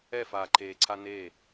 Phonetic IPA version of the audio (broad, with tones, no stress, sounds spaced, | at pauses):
ɛ˥˩ f aː˨˩ ǃʰ eː˨˩ ǀʰ a˦ n eː˥˩